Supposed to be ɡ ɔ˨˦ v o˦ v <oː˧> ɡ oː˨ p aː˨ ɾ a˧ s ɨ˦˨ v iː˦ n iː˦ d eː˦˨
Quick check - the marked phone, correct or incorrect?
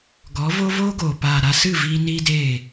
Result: incorrect